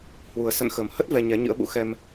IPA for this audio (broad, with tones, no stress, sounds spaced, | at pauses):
h w u˨˩ ə̯ s ə̰˧˨ n x ə˨˩ m h ə˦˥ t̚ v ɛ˧ ɲ ɛ˨˦ ɲ ɨ̰˧˥ ə̯ ɓ ṵ˧˥ x ɛ˧ m